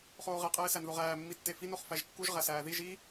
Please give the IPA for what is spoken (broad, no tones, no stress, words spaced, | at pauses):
χoːʁe qʼeːsænðoʁæː mːitːefin oχfæʒkːuʒ ʁæsæːðiʒ i